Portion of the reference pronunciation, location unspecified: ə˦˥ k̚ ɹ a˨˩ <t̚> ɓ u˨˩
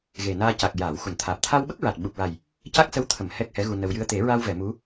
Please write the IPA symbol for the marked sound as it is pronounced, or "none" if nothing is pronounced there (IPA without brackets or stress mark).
t̚